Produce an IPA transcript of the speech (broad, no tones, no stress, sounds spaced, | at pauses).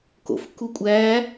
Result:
k o̰ f k u kʷʼ æ